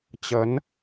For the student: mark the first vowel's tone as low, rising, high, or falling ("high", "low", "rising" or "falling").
rising